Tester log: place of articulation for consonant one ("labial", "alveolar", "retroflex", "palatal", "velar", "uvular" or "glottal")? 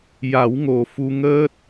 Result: palatal